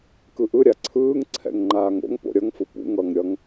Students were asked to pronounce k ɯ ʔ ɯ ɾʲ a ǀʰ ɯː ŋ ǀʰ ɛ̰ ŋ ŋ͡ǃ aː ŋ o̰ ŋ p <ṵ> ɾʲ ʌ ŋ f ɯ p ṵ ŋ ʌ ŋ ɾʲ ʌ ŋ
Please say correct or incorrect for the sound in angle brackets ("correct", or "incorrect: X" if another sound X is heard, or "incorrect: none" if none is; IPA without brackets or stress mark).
incorrect: o̰